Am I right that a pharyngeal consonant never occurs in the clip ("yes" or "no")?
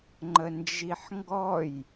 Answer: no